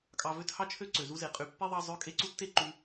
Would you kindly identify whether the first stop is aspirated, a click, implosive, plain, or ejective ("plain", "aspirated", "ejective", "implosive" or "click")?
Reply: ejective